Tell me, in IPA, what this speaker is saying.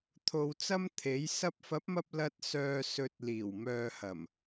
t̪ʰ o˧ w t͡s ɐ˥ m t̪ʰ e˨˥ j s ɐ˧ p̚ f ɐ˨˥ p̚ m ɐ˧ p̚ l ɐ˧ t̚ s œː˨ s ɵ˨ t̚ l iː˨˩ w m œː˨ h ɐ˨˩ m

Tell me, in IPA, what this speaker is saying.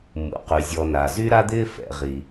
m ṵ˩ q y˩ zʲ ɔ˨ n a˩ z y˦ ɾ a˦ d̪ ɪː˦ f ɛ̰˨ ʁ i˩

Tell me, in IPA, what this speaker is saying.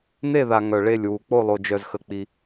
n̪ e˥˧ ð a˧ ŋ œ˧ ɭ e˥˧ lʲ w u˧ k͡p o˥˧ lˠ o˧ d͡ʒ œ˧ z x ə˧ k͡p i˧

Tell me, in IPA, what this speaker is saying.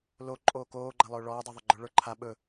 l o ǃʼ oː k oː ɡ͡ǃ a lˠ ɵː ɭ ɔː dˤ ɛ ðˤ ɵ ɡ͡ǃ ə˞ ɭ ə˞ ǃʰ a ɓ ɵ

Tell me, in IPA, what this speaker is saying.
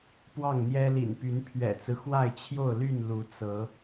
p w ɑ˥˨ ŋ n̪ j ɛ˦ l ḭ˨˩ n p y˨˦ n pʰ ɥ ɛ̰˨˩ t͡s ɹ̩˦ x w a˥˨ ɪ̯ t͡ɕʰ j o˥˨ ʊ̯ l y˥˨ n l u˨˦ t͡s ɤ˨˦

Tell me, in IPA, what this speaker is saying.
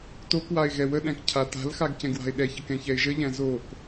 t o k w a ɪ̯ ɣ ɛ w ə ɗ æ̃ k cʰ a t a̤ l x a ɡ c ɛ̃ ɡ w a̤ ɪ̯ ɗ ɛ ç ə k ɛ̃ ç ɛ ɪ̯ ʒ ə ʎ æ̃ z o k

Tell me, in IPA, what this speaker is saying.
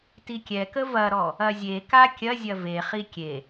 t i kʲ ɛ k ə v ɐ ɾ ɔ | ɐ zʲ e k a kʲ ɐ zʲ ɐ v e χ i kʲ e

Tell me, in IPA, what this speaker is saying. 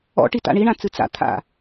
ɔ̰ ʈ i t a̰ ɳ i ɳ ã t͡s ɨ t͡s a̰ t̪ʰ a̰

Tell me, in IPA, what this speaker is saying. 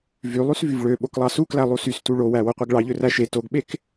v y lˠ y s v y v ɭ ø ɓ o k lˠ ɑ s u k l æ lˠ u s y s t u ɭ o w æ w o qʷ e ɡ ɭ ɑ ʎ ø r æ ʃ e t o ɡ ɓ e k

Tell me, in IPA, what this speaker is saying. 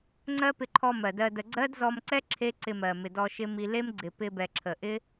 ŋ͡ǀ ɜ˦ p ɪ˧ ǃʰ ɔ˧ m ɜ˨ d ɜ˧ d ə˧ ɡ͡ǀ ɜ˦ d z ɔ˧ m ǀ ɛ˦ ǁʰ e˦ ǀ ɪ˧ m ɜ˨ m ɪ˨ d ɔ˧ ʃ ɪ˦ m i˧ l e˦ m ɡ͡ǀ ɪ˨ p ɪ˧ b ɛ˨ ǁʰ ə˨ ʔ ɪ˦

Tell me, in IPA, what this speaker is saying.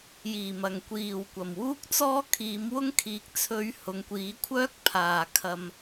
j iː˨˩ m ɐ˨˩ ŋ kʷ iː˨˩ w kʷ ɐ˨˩ m w uː˥ k̚ t͡s ɔː˥ kʰ iː˨˧ m w ʊ˥ ŋ kʰ iː˨ k̚ t͡sʰ ɵ˧ ɥ h ʊ˨˧ ŋ kʷ iː˨˥ kʷʰ œː˥ k̚ pʰ aː˨˩ kʰ ɐ˨ m

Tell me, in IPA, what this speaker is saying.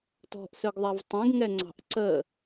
t ɔ̤ ʔ s œ ɡ ðˤ a v tˤ ɛ̃ ɡ ŋ ɛ ŋ͡ǀ ɑ̤ ʔ ǀ ə

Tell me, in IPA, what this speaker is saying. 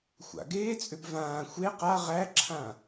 xʷ a̰ ɡ eː t͡sʼ ʏ b v ãː xʷ e q a ʁ æ ǁʰ ã

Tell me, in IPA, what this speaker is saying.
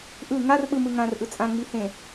ʔ ɯ ŋ a r ɓ ɯ m ɯ ŋ ã r ʔ ɯ t͡sʼ ã ŋ͡m i h ẽ

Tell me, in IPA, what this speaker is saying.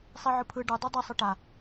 sˤ i ʕ ɯ pʰ ɯ ɖ ɯ dˤ o dˤ ʌ sˤ ɯ ʈ a

